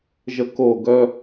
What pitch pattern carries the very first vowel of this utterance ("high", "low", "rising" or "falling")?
high